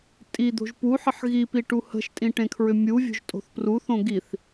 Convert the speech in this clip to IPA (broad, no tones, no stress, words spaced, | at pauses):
tʼi d̪o̤ʒpuħəħ ɣipi ʈuhə̤ʃtʼĩ ʈẽkʰɹʏmʲuvʲo̤ʒ tʼo̤θpruθõ ɡiθ